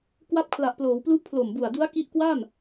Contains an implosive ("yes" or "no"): no